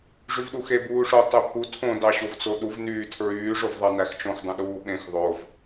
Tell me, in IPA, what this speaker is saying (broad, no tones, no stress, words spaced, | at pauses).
ʐyvɗuxe buːʂo tˤepʰu tʰõ dɑɕovt͡soɗuv nyːtʰɹyː ʐovðˤɑnæxt͡ʃõx dˤõɗuːɓẽx ðˤov